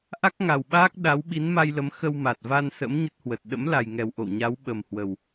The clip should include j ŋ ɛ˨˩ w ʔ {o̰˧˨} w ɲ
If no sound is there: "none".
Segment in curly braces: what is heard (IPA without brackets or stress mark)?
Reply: o̰˧˨